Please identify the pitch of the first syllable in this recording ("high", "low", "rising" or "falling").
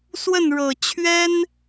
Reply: falling